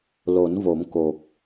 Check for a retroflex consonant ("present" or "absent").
absent